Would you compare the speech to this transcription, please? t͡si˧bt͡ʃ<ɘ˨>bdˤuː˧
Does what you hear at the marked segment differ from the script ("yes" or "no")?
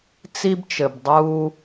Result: no